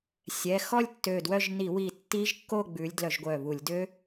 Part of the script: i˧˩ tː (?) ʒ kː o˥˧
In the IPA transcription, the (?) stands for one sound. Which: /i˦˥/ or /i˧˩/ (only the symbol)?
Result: i˦˥